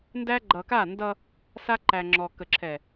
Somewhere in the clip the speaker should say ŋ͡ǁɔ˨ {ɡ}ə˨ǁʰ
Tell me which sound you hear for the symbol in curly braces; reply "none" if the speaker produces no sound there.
k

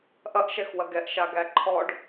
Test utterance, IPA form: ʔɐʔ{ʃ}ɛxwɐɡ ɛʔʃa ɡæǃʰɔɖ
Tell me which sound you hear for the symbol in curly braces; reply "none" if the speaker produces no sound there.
ʃ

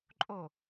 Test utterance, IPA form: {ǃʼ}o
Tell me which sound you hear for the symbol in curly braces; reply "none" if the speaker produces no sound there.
ǃʼ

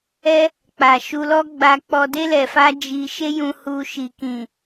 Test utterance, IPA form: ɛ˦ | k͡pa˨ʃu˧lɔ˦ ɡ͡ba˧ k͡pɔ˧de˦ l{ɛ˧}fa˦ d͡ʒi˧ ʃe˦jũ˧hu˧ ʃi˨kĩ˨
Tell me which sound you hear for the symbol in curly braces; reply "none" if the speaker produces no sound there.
ɛ˧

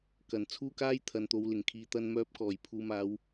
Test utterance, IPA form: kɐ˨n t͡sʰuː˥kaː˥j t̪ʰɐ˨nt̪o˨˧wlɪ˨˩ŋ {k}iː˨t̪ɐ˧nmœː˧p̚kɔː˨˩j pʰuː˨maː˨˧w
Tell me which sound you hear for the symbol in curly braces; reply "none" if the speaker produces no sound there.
kʰ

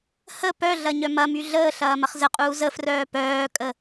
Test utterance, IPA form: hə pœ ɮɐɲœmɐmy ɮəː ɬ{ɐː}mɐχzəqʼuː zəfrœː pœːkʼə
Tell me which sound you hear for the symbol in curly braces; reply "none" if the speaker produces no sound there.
ɐː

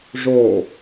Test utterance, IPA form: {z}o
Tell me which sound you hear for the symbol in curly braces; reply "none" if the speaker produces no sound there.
ʐ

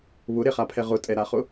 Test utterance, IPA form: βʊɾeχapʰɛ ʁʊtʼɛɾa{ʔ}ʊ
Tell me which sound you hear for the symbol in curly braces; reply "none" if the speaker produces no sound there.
χ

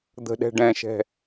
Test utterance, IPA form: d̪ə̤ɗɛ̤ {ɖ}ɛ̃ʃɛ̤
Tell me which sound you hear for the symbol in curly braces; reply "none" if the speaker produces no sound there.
ɖ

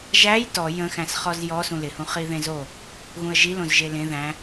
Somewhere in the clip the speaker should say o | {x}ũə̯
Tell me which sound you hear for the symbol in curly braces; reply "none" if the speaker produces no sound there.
ɣ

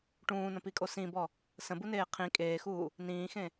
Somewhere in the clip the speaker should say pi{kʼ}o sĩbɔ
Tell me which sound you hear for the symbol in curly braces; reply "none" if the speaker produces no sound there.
kʼ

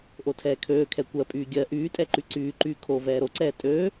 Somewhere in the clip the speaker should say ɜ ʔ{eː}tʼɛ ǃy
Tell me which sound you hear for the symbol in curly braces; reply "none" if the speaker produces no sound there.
yː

